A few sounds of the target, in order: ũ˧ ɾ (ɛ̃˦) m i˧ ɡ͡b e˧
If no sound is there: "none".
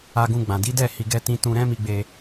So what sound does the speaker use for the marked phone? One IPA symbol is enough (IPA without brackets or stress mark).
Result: ɛ̃˦